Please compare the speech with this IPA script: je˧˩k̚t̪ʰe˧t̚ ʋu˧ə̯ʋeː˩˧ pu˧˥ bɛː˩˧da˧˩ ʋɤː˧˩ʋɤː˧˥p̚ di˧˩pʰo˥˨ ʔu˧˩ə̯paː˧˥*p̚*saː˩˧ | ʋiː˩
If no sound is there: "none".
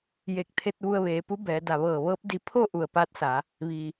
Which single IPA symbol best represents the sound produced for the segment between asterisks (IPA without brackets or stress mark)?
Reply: t̚